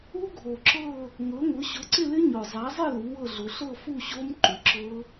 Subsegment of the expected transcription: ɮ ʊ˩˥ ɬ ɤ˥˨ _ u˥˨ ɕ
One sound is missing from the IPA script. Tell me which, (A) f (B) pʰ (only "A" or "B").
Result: A